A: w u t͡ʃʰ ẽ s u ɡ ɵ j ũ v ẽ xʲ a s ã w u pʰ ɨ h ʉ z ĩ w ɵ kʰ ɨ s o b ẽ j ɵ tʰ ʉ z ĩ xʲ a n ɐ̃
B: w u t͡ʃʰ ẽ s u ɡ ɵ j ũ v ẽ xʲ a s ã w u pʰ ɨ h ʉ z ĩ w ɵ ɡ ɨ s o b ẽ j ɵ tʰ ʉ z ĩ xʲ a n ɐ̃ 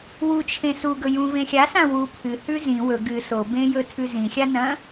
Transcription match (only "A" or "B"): B